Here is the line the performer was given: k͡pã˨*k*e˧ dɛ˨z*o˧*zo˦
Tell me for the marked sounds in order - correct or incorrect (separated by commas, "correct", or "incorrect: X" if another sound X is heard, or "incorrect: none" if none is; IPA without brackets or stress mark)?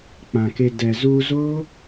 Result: correct, incorrect: u˧